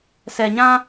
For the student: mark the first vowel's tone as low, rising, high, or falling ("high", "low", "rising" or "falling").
low